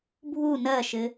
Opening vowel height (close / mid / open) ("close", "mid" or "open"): close